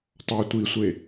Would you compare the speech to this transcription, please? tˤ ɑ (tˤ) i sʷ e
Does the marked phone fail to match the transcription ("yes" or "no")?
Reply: yes